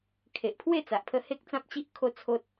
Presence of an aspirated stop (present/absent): present